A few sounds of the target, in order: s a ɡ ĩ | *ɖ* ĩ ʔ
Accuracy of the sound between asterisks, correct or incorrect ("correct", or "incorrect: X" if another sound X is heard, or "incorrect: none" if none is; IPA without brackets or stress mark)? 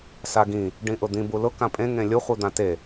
correct